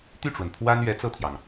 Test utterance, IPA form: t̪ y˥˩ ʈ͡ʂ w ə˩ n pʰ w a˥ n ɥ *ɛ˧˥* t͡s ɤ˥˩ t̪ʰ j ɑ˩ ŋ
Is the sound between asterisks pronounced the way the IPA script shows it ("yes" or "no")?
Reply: yes